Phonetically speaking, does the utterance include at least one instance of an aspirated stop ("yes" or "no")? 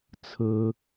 yes